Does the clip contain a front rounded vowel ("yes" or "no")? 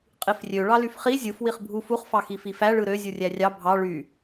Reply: yes